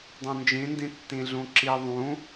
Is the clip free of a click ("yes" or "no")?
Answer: no